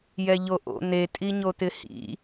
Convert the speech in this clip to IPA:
j ɛ ʎ o ʔ o̰ n̪ e tʼ i ɲ o t̪ ɪ h ḭ

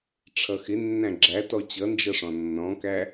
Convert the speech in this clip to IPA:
ʈ͡ʂʰ ʌ x ɪ nː æ̃ ɡ͡ǁ æ t ɔ t͡ɕ ʌ n d͡ʒ ʌ ʂ ɔ̃ nː ɔ̃ k æ

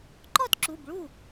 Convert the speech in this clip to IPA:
ǃ ɔ˥˧ t ǁ u˩˧˩ b ɭ u˥˩

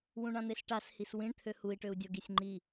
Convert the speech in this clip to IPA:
w ũ ɳ ã n̪ e s ʈ a s h i s w ĩ ɳ t̪ʰ ø h u i̯ ʈ ø u̯ dʲ ɤ ɡ i sʲ ŋ͡ǃ i

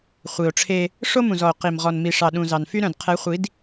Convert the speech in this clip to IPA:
χʷ i˨ o̯ ʈ͡ʂʰ e˦ | ʂ o˦ m ũ˨ z ɔ˨ o̯ q i˨ m ʁ ɔ˨ n m i˨ ʂ ɑ˨ ɗ ũ˨ z ɑ˨ n f y˦ ɾ œ̃˨ d qʰ ɛ˨˦ χʷ i˨˦ d

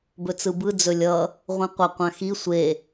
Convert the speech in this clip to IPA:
b ɵ t͡s ɯ b ɯ d͡z ɵ lʲ ʌ | ʁʷ ĩ qʷ ʌ qʷ ã x i sʷ e

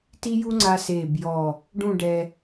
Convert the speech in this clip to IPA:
t i˥ j u˥ ŋ͡ǀ a˧ s eː˧˩ b j ɔ˧˩ | ɖ ũ˥˧ ɖ ɛ˧

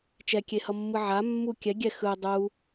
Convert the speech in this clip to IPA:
t͡ʃ ɛ kʲ e h ʌ mː ɯ ʕ a mː u kʲ ɛ ɡʲ ɛ x ɯ dˤ u

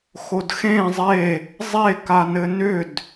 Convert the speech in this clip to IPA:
x o d x ẽ zˤ e | zˤ e k a n ɘ n ʏ d

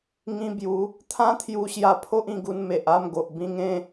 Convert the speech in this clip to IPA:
ŋ ĩ˧ b j u˨˦ | t̪ʰ ã˦ t̪ʰ j u˧ ɕ j a˧ pʰ o˦ ʔ ĩ˧ ɡ u˧ n m e˨ ʔ a˥˧ m ɡ o˨ ʔ b ĩ˧ ŋ ẽ˧

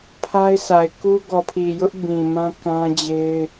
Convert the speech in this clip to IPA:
pʰ a˦ ɪ̯ sʰ a˨ ɪ̯ k u˦ ɡ ɔ˨ pʰ i˨ j ʊ˦ ʔ b ĩ˨ m ã˦ k ã˦ d͡ʑ e˦ ɪ̯

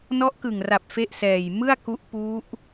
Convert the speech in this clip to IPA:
n ɔ˦˥ ʔ k ɯ˨˩ ŋ r a˨˩ p̚ f e˥˩ ʔ s ɛː˨˩ j m ɯ˥˩ a̯ k u˦˥ ʔ p u˦˥ ʔ

